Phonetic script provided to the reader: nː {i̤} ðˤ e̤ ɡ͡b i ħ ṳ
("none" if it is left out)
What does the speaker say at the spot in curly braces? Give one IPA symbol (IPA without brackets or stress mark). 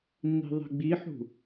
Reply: i̤